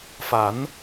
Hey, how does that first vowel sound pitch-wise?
rising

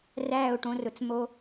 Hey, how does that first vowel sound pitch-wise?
falling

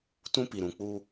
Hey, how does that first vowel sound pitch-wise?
high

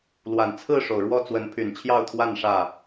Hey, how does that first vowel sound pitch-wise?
low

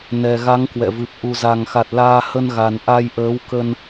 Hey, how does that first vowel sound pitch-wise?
low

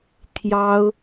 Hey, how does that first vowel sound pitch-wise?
high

